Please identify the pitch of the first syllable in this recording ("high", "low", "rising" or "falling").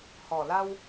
low